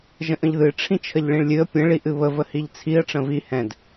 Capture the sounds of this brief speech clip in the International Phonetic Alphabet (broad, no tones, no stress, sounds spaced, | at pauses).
ʒ ə̃ ʔ ə̃ ʎ ð ɨ ʈ͡ʂʰ ĩ t͡ʃʰ ə ʎ ɭ ĩ ɭ lʲ ɨ ə̯ pʲ ə̃ ɭ i ʔ ɨ β ə v ə h i ʎ t͡sʰ i ə̯ ʈ͡ʂ ə̃ v i h ɛ̃ d